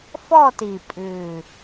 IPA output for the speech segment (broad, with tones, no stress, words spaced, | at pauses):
fɔ˥˧ti˨˩pʼʉː˨˩